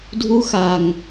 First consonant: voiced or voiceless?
voiced